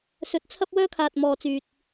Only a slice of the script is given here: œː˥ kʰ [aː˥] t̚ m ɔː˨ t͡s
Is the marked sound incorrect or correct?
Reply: incorrect